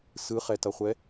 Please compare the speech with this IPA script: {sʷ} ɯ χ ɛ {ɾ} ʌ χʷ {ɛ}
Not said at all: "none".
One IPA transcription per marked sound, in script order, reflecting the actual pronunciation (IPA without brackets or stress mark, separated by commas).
s, t, ɛ